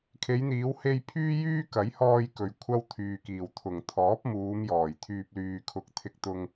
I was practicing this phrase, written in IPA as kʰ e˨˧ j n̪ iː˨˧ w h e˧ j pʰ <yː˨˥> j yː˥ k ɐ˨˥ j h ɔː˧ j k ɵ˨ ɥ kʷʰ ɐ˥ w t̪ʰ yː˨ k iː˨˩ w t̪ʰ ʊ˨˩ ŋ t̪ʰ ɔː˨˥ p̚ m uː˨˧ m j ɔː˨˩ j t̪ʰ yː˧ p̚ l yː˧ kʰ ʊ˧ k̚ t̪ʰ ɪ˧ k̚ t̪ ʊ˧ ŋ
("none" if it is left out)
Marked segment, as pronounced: yː˥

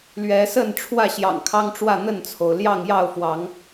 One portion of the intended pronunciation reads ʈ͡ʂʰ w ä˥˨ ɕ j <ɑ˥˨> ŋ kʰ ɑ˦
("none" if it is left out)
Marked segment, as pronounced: ɑ̰˨˩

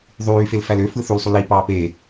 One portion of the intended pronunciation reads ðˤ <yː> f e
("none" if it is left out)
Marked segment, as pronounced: yː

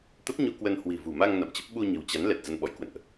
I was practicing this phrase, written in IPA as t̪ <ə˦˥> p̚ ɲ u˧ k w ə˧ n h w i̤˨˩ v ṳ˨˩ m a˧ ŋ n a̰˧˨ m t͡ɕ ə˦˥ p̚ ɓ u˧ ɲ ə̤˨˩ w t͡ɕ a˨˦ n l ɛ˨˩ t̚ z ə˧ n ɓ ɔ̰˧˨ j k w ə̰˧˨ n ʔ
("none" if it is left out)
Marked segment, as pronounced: ə˦˥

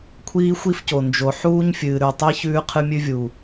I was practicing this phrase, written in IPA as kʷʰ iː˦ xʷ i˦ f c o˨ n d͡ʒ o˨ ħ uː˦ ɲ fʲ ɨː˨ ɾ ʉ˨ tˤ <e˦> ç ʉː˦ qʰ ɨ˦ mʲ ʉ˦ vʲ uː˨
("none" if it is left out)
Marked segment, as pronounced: i˦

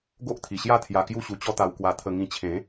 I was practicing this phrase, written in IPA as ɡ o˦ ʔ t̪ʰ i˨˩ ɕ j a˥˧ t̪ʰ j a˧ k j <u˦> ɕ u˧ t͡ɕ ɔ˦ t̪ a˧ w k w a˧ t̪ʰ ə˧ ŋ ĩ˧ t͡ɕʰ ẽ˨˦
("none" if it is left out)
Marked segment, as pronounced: u˥˧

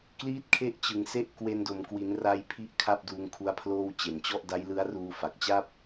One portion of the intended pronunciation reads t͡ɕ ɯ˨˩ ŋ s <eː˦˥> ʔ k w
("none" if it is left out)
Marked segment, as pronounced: e˦˥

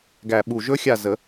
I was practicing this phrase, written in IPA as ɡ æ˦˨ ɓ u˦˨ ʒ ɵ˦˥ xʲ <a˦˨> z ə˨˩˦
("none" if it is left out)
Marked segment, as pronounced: a˦˨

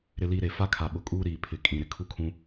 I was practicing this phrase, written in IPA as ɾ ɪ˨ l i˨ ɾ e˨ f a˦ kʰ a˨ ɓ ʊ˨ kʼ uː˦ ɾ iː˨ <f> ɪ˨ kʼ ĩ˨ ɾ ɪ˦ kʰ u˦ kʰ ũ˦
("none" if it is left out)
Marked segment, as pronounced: pʰ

